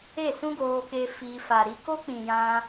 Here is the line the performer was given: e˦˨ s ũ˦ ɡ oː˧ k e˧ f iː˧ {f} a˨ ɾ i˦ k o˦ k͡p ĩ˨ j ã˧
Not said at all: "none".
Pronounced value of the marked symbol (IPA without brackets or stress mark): f